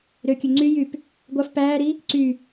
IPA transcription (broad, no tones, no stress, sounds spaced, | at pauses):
ɾ ø kʲ ø ŋ͡ǀ y j y p | ɡʷ ɑ f p æː ɾ i | ǀ y